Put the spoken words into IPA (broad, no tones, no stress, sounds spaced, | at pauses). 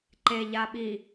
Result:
ǃ e ʎ a ɓ i